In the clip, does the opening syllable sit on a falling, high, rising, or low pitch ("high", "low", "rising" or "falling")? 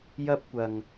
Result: high